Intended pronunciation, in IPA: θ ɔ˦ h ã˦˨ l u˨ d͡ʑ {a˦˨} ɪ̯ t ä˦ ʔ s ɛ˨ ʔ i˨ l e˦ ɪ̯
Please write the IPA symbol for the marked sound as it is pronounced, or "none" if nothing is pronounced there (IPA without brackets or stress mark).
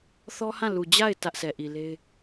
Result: a˦˨